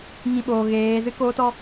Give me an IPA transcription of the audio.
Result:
ŋ ĩ˧ ɓ oː˨ ɣ eː˨˦ z ɨ˦ k oː˦ t ɔ˦

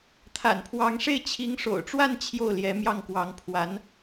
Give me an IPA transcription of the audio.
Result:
t̪ʰ a̰˨˩ n pʰ w ɑ˧˥ ŋ ʂ e˥˩ ɪ̯ t͡ɕʰ i˧˥ ŋ ʂ o̰˨˩ ʊ̯ ʈ͡ʂ w a˥˧ n t͡ɕʰ j o˥˩ ʊ̯ l j ɛ˧˥ m j ɑ˥˩ ŋ k w ɑ˧˥ ŋ pʰ w a˧˥ n

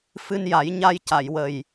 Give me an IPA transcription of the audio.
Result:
f ɨ˧ n j a˨˩˦ j ɲ a˧ j c a˨˩˨ j w ə˨˩ j

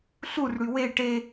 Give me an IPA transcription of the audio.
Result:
ɬ u r ɽ y w e ʈ e

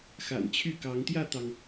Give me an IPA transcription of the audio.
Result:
x a̰˨˩ n t͡ɕʰ y˥˨ k ɑ˨˦ ŋ t̪ j ä˥˨ t̪ ɑ˩ ŋ

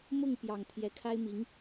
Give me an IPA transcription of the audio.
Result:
m ʊ˥˩ ŋ p j ɑ˨˩ ŋ t̪ʰ j ɛ˧˥ kʰ a˥ ɪ̯ m i˧˥ ŋ

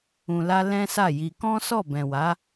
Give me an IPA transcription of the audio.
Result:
ũ˧ l a˦ l ɛ̃˦ s a˦˨ j i˧ k ɔ̃˦ s ɔ˦˨ b ɛ̃˨ w a˨˦

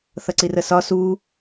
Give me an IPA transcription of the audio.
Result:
θ ʌ ǀ i r ə s ɒ s u

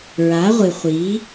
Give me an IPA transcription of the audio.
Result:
ɹ a˨˦ ʁʷ ɨ˨ χʷ i˨˦

